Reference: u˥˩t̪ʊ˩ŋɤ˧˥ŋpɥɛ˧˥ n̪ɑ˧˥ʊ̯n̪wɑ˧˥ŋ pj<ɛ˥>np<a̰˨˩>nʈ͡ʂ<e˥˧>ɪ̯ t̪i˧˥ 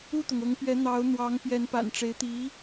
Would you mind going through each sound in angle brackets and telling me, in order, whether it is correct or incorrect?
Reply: incorrect, correct, incorrect

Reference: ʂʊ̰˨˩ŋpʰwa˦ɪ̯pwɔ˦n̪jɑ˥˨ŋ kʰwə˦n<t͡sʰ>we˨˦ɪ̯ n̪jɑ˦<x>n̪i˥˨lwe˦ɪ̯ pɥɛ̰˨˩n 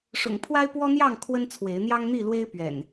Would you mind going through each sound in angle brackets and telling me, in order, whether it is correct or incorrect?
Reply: correct, incorrect

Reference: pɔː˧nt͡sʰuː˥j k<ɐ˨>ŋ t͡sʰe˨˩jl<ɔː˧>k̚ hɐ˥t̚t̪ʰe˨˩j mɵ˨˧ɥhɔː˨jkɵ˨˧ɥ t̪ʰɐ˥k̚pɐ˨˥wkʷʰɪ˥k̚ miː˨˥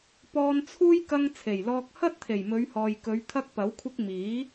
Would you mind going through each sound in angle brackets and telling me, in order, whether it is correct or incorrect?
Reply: incorrect, correct

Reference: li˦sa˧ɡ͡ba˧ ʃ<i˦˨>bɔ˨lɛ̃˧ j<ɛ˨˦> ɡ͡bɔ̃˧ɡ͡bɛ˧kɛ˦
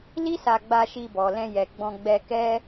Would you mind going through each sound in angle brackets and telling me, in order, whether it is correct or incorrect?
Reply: incorrect, incorrect

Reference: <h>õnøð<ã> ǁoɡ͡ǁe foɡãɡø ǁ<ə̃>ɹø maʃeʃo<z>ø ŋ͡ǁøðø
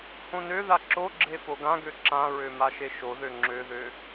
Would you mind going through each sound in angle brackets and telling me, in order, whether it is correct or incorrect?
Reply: correct, incorrect, incorrect, incorrect

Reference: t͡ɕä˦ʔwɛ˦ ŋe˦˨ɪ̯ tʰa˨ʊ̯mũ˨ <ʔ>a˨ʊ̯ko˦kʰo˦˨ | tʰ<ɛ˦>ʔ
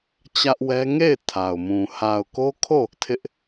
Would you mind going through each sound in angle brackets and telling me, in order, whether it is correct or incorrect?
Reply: incorrect, incorrect

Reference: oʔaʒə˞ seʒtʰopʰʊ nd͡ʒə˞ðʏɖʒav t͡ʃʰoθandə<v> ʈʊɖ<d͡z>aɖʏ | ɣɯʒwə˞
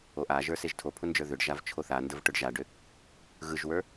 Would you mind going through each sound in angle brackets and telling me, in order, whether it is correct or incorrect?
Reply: correct, incorrect

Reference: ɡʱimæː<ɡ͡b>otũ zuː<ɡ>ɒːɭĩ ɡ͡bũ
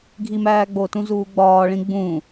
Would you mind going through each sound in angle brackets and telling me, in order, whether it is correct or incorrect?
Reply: correct, incorrect

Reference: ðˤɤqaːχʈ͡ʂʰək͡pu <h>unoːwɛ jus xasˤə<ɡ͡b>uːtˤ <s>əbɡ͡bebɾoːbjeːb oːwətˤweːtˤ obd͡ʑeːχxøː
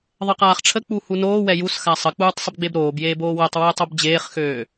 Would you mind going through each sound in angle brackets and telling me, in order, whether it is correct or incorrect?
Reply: correct, incorrect, incorrect

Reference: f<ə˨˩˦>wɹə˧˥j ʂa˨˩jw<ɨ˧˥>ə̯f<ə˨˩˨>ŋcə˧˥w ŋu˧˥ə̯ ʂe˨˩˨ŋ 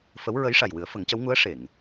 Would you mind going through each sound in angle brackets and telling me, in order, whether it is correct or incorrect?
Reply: incorrect, incorrect, incorrect

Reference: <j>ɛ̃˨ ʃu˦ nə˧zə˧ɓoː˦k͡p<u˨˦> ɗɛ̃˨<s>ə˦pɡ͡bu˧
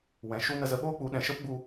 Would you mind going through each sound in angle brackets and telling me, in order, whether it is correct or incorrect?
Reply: incorrect, correct, incorrect

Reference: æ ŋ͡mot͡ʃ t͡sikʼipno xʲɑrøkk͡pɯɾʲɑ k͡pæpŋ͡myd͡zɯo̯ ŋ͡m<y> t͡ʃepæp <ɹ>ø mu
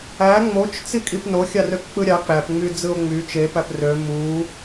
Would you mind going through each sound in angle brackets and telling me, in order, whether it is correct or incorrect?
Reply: correct, incorrect

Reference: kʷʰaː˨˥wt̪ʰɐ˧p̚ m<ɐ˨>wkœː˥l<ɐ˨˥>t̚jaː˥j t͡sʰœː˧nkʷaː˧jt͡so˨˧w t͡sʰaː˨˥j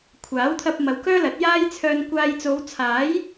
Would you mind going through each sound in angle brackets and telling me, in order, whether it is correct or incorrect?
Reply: correct, correct

